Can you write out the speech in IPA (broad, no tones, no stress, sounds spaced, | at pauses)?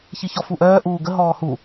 ç i ç ɔ f u ʔ œː ʔ uː ɡ ə ɦ ɔː h u